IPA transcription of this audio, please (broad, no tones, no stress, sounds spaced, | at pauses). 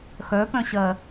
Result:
x œ p œ̃ ɕ ɜ